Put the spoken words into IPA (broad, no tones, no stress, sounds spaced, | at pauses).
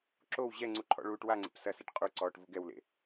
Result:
ǁ o w ʑ ɛ ŋ͡ǀ u ǃʰ ɔ̰ ɭ uː ʈ w a ŋ͡ǀ ḛ p s ɐ s ɛ ʈ qʼ u ǀ ɔː ʈ v u ɡ ɛ w l ḛ